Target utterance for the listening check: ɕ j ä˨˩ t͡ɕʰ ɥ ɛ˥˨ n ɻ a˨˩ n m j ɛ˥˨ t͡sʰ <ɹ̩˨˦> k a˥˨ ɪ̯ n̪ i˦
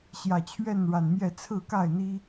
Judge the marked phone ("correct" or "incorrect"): incorrect